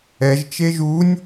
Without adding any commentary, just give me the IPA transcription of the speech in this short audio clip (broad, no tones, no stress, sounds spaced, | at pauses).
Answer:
ɛ ʒ t͡ʃ e ʒ u nʲ